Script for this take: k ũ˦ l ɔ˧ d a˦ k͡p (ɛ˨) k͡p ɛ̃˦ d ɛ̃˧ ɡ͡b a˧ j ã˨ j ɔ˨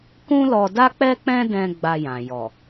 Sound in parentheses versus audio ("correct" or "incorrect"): incorrect